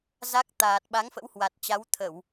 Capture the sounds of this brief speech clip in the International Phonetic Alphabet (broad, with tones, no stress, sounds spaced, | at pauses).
z a˦˥ k̚ t̪ aː˨˩ t̚ ɓ a˨˦ ŋ f ə̰˧˥ w h w a˨˩ t̚ t͡ɕ a˨˦ w t̪ʰ ə˧˩˨ w